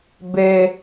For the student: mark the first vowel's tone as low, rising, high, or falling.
high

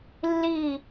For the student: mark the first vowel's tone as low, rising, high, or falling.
falling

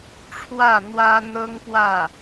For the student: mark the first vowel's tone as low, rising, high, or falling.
falling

